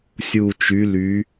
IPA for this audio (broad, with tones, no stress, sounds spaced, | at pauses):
sʲ u˨˩ t͡ʃ y˨˦ l y˨˦